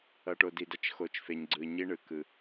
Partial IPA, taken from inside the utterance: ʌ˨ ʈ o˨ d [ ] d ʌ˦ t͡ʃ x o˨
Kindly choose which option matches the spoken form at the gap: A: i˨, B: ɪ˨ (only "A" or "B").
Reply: A